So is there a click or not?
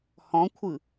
no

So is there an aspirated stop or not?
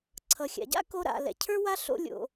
yes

